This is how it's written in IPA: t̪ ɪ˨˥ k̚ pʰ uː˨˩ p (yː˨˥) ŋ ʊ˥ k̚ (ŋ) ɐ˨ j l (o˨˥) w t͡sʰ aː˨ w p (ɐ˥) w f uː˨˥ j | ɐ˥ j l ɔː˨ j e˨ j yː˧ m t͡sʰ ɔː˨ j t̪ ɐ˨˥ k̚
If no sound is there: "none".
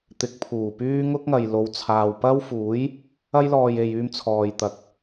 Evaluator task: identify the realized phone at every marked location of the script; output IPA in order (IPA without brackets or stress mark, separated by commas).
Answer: yː˥, ŋ, o˨˧, ɐ˥